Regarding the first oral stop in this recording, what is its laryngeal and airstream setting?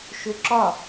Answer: click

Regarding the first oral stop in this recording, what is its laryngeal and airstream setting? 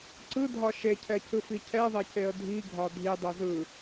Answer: click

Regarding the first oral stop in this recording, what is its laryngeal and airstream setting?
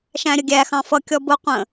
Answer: plain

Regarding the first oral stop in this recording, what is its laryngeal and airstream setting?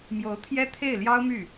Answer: aspirated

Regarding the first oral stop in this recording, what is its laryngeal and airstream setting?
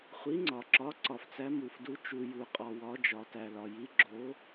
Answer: click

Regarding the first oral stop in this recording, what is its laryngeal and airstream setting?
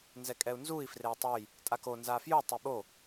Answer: ejective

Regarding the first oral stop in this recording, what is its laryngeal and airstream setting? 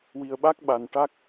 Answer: implosive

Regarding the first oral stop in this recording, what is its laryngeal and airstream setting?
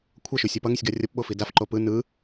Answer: aspirated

